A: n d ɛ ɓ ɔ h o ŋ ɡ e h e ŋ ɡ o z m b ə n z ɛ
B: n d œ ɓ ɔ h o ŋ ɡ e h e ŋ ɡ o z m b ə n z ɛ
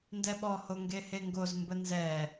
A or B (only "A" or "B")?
A